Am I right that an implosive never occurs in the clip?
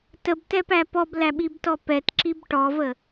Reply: no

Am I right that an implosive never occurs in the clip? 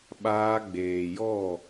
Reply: no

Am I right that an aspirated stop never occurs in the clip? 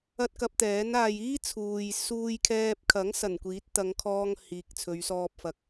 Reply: no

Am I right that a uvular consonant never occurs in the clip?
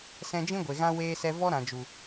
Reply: yes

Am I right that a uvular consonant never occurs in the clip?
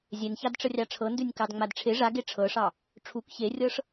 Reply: yes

